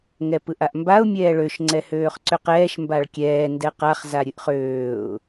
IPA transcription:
ŋ ɛ p ɯ ʔ a ʔ m b a ʊ̯ mʲ ɛː ɭ ø ʃ ŋ͡ǀ ɛ h øː χ ǀ ʏ q ɛː ʃ m b a ɭ kʲ ɛː n d ɛ q a χ z a ɾʲ ɨ ʔ χ øː ʊ̯

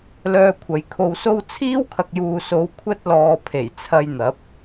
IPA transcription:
l œː˧ kʷʰ ɐ˨ j kʰ o˧ w s o˥ w t͡sʰ iː˥ w kʰ ɐ˨ k̚ j uː˨ s o˨˧ w kʷʰ ɐ˥ t̚ l ɔː˨ pʰ e˨˩ j t͡sʰ ɐ˧ j n̪ ɐ˨˥ p̚

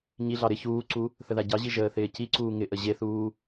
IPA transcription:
ɲ i ɮ ɑ ɾ ɪ ç uː ǀ u | θ ə ð a ɟ ɑ ʑ i ʒ əː θ ɪː c i ǀ uː ŋ ɪ ʔ ə ʑ e θ uː

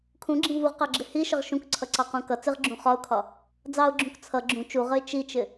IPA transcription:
kʰ ũ ɡ͡ǁ ĩ v u ʁ q ɑ ɡ͡ǁ ɪ h i ʃ ə ʁ ʃ ũ k ǀʰ ʌ ǀ ɑ q ũ k ʌ t͡s ɪ ʁ ɡ͡ǁ ũ χ ɒ ʊ̯ kʰ ɒ | d͡z ɑ ʊ̯ ɡ͡ǁ ũ k t͡sʰ ʌ ɡ͡ǁ ũ t͡ʃ u ʁ ə ɪ̯ t͡ʃ i t͡ʃ ɪ

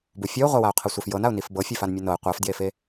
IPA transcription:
b u fʲ ɔ ʊ̯ ʁʷ a w a ʊ̯ qʰ ɤ sʷ ɛ f j ɤ n a ʊ̯ n i f b ɤ fʲ ɛ f a n mʲ e n ɤ ɪ̯ qʷ a f d j e f e

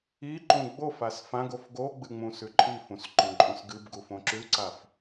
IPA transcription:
i ǃ ũ ɡ͡b o f a s f ã ɡ o f ɡ o ɡ͡b ɨ ŋ͡m ũ s ʉ ǃʼ i f ũ s ǃ õ ǃʼ ũ s ɡ ɨ b ɡ u f õ ǁ ʉ ǀ a f

